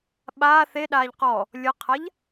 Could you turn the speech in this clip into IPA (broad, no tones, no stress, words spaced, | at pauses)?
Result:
ɓaː θeɗaːʎ qɔ | lʲɤqʰaʎ